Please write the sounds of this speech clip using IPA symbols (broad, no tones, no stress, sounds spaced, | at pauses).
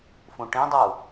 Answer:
f ũ ʈ ĩ dˤ u